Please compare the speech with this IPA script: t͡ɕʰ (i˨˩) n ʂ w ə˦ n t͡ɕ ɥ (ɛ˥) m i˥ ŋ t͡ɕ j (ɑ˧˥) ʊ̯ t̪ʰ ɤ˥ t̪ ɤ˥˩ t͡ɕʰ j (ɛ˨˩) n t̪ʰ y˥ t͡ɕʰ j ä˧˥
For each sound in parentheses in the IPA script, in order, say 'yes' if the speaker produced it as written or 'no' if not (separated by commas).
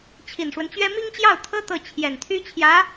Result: yes, yes, no, yes